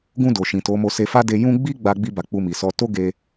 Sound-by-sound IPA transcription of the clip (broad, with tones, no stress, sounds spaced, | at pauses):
ɡ ũ˧ d o˨ ʃ ĩ˨ t o˨˦ m o˧ s e˧ f a˦ d e˧ j ũ˦ ɡ͡b i˦ ɡ͡b a˧ ɡ͡b i˧ b a˨ k͡p u˧ m i˨ s ɔ˧ t o˦ ɡ e˧